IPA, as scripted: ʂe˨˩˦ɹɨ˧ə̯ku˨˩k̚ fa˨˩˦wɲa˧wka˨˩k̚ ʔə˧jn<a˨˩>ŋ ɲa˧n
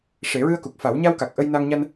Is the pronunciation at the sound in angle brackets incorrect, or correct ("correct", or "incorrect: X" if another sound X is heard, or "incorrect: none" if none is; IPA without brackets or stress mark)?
incorrect: a˧